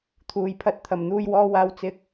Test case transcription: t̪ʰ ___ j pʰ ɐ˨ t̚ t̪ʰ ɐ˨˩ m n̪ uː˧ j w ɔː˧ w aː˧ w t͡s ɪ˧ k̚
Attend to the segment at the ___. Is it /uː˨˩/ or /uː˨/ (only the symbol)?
uː˨˩